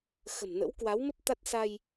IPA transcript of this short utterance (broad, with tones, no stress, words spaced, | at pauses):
xə̤˨˩mnə̰˧˥wkwa˨˦wmə˦˥p̚ t̪a˦˥t̚ sa˧j